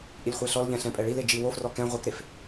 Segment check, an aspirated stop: absent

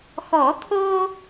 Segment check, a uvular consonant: absent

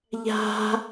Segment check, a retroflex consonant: absent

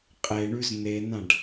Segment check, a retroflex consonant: present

